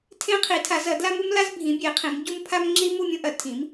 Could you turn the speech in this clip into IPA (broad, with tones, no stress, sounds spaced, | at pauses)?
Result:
tʰ ẽ˥ qʰ i˨˥ tʰ a˨˥ z ɐ˨˥ d l a˥ m u˥ m l a˥ z bʱ ĩ˨˥ bʲ e˨˥ qʰ ĩ˨˥ m ɟ u˥ m pʰ a˥ m ŋ͡ǁ i˥ m u˨˥ mʲ ũ˥ ʔ ɐ˨˥ tʰ ĩ˨˥ m